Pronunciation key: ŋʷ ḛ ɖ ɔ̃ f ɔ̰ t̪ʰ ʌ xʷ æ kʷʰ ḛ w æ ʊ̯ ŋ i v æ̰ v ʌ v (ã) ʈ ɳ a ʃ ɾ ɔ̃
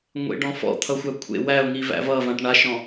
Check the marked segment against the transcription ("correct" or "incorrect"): correct